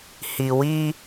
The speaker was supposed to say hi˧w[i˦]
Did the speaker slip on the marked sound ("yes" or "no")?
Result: no